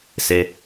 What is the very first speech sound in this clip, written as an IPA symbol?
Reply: s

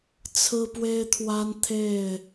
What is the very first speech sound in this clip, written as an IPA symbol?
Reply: t͡sʰ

